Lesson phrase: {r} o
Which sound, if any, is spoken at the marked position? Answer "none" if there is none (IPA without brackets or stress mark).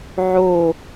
ʕ